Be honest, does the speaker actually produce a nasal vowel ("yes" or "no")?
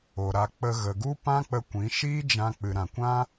yes